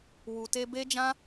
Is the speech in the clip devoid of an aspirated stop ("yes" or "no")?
yes